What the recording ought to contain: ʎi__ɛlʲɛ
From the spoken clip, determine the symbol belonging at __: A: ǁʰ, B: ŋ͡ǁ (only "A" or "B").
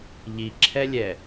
A